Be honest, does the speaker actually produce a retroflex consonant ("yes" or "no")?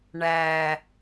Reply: yes